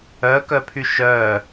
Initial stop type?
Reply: plain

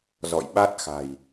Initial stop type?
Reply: implosive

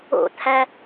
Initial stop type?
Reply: aspirated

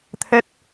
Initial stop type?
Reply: aspirated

